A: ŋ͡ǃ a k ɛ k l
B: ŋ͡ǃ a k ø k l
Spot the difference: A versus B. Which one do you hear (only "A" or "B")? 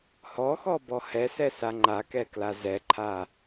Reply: A